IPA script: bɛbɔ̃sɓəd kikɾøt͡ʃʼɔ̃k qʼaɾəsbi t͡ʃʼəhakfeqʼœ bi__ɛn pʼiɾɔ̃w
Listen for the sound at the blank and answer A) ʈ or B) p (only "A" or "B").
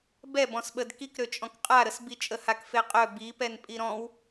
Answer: B